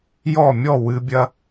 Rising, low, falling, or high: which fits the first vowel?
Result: falling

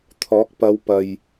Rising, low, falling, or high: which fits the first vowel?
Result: rising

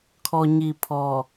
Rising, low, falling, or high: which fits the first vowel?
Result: low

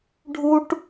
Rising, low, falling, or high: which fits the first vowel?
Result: high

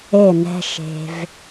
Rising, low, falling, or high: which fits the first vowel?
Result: falling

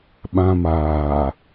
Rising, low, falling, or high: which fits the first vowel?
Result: high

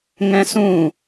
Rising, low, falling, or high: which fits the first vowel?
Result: high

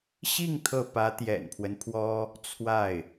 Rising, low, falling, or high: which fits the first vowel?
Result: falling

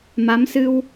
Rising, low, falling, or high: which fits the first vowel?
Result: rising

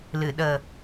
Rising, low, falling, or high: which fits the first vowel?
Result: low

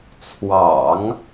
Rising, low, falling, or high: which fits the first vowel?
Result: low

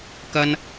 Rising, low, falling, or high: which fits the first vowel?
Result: high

